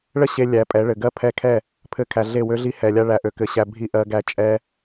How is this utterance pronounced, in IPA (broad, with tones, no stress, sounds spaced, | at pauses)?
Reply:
ɭ ə˦ ɕ e˧ lʲ æ˨˦ pʼ ɛ˨˦ ɭ ɘ˨ ɡ ɜ˦ pʰ ɛ˧ kʰ ɛ˦˨ | pʰ ɘ˧ kʰ æ˨ ɮ e˦˨ w ø˦ ɮ i˦ h ɛ˨ lʲ a˦ ɭ æ˨ ʔ ø˨ k ɘ˧ ɕ æ˧ bʱ i˦ ʔ ɜ˧ ɡ æ˦ t͡ʃʼ ɛ˦